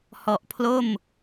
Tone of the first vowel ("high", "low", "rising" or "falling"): low